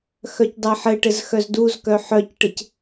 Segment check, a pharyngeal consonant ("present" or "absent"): present